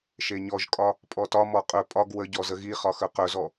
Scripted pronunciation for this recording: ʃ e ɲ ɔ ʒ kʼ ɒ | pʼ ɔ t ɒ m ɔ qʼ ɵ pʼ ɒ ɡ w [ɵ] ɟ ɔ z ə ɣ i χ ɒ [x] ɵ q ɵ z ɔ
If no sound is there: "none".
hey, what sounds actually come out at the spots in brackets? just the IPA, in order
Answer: ə, x

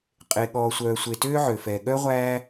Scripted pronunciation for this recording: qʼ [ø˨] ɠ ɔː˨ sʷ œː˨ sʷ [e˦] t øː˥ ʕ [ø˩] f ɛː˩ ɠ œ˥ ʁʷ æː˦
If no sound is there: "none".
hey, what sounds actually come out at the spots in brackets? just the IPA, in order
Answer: e˨, e˨, ø˩

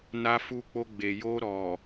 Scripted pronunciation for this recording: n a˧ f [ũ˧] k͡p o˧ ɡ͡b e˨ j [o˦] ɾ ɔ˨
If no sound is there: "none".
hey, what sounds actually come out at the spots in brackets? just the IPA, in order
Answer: u˧, o˧

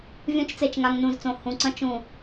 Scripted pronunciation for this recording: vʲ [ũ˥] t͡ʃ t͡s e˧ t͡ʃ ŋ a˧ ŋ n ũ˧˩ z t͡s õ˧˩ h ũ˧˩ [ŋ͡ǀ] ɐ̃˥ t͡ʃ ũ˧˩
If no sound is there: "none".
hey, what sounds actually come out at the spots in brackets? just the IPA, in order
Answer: ũ˥, ǀ

